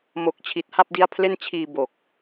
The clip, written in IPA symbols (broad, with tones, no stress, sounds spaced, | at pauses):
m o˨˩ k̚ t͡ɕʰ i˨˩ t̚ h a˥˩ p̚ d i˦˥ a̯ pʰ l e˥˩ n t͡ɕʰ iː˧ b o˨˩ k̚